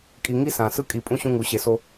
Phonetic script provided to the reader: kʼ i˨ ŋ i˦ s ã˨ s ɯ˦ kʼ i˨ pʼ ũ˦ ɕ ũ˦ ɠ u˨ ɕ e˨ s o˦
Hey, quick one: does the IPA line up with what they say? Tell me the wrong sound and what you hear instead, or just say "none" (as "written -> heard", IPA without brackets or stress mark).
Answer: ɠ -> ŋ